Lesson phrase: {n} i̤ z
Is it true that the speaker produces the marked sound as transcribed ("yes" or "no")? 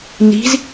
yes